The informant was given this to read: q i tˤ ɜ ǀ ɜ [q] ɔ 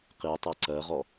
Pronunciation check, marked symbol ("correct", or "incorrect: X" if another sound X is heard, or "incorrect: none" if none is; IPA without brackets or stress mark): incorrect: ʁ